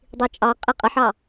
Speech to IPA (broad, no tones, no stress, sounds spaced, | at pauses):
dˤ i t͡ʃʼ ɑ qʼ i qʼ ə ħ ɑ